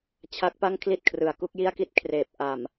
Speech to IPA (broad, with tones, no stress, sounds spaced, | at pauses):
t͡ɕʰ a˦˥ k̚ p a˥˩ ŋ kʰ l i˥˩ t̚ kʰ r ɯ˨˩ a̯ k u˥˩ k̚ j i˥˩ a̯ k i˥˩ t̚ kʰ r eː˨˩ p̚ ʔ a˨˩ m